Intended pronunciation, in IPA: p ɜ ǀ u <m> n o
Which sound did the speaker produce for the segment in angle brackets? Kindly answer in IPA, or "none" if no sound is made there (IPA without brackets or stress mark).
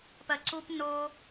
p